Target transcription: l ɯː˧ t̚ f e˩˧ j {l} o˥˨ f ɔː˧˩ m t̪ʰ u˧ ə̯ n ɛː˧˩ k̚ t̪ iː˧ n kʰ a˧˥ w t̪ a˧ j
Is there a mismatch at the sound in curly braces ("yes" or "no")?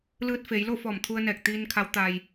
no